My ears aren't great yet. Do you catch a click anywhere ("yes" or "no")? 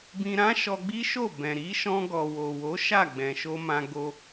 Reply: no